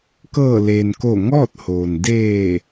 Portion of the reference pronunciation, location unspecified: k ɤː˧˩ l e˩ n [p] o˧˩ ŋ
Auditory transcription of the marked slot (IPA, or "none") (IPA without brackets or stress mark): k